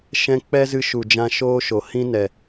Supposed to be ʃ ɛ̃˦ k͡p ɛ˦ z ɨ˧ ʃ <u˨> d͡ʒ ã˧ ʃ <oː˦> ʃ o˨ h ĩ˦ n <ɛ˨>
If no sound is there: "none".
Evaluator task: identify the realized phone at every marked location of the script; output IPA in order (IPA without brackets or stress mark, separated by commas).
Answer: u˨, oː˦, ɛ˨